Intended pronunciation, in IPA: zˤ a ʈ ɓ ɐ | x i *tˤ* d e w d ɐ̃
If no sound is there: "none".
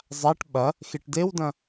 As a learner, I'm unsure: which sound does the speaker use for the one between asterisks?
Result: ʈ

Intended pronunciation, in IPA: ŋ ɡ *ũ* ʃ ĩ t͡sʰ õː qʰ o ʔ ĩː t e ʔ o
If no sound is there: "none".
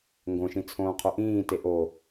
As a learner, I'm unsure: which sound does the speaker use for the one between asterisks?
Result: õ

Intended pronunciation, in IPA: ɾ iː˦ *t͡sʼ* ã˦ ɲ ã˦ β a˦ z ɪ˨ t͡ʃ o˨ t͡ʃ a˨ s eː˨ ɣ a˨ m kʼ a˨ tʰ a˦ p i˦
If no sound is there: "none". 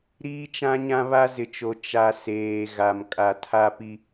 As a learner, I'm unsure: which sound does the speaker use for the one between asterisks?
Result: t͡ʃ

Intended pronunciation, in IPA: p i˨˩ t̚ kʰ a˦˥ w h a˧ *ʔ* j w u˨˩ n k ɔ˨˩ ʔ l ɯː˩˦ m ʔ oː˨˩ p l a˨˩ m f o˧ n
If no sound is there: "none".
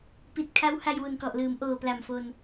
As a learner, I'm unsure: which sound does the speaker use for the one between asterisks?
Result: none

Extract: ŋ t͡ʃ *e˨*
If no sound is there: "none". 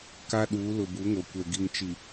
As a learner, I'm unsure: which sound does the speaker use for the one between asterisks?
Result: i˨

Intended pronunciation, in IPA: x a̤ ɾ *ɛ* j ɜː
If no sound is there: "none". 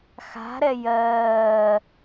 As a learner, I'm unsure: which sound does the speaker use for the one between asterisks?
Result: ɛ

